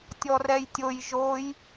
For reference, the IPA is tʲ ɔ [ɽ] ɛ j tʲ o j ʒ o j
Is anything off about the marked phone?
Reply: yes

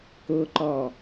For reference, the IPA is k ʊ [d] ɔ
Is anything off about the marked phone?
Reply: yes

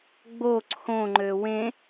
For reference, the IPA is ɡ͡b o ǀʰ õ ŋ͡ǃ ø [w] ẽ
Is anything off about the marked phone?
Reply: no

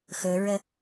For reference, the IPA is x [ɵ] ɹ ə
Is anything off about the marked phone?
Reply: no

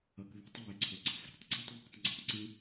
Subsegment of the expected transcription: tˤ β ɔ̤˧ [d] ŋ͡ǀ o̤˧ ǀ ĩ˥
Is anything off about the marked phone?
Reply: yes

